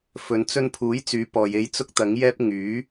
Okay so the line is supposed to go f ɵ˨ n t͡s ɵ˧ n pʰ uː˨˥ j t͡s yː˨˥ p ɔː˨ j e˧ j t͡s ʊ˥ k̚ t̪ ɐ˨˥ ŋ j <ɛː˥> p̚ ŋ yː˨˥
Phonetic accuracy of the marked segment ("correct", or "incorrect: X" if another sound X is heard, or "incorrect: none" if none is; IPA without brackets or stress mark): correct